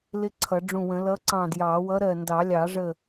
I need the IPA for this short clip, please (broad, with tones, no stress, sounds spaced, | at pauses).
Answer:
l ɪ˦˥ ǀʰ ʌ˨˩˦ ɖ͡ʐ ũ˧˩ w ə̃˨˩˦ l ʌ˨˥ ǀ ɑ̃˧˩ d j ɑ˨˩˦ w ʌ˨˥ ɾ ɜ˧˩ n d ɑ˨˩˦ lʲ ɑ˨˩˦ ʐ ə˧˩